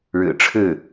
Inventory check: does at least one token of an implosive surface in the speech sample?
no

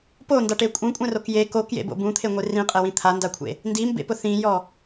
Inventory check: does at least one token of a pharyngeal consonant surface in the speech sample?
no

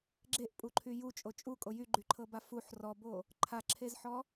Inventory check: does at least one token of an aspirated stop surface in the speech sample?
yes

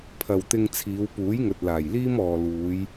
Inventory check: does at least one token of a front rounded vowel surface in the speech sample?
no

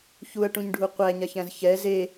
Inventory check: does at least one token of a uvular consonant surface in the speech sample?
yes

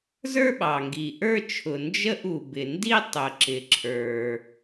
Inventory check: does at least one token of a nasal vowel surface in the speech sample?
no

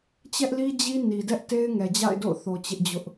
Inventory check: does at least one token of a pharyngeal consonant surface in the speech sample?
no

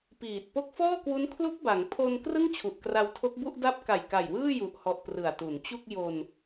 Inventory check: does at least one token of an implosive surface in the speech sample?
no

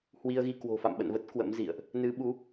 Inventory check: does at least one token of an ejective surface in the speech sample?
no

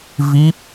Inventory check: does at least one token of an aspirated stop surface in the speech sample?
no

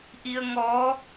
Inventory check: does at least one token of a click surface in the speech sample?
no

